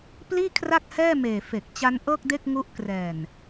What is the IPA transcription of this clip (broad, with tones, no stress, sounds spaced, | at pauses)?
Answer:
p l iː˥˩ kʰ r a˥˩ k̚ h ɛː˥˩ m eː˨˩ f e˨˩ k̚ t͡ɕ a˦˥ n ʔ ɤː˥˩ k̚ d e˥˩ k̚ ŋ u˦˥ ʔ k r ɛː˨˩ n